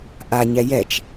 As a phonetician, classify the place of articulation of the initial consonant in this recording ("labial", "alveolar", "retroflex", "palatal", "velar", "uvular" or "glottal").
glottal